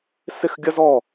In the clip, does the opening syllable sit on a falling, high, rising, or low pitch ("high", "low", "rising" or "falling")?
falling